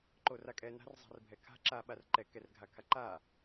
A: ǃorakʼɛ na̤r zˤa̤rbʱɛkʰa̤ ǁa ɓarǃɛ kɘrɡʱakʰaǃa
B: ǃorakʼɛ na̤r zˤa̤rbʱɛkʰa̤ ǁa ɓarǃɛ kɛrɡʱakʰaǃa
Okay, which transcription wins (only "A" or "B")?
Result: B